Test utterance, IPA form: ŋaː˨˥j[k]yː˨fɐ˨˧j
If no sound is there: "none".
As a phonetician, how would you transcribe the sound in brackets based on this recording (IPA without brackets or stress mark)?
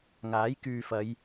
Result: k